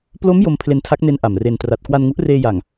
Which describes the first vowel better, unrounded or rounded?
rounded